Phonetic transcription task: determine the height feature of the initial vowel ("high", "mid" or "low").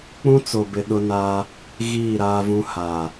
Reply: high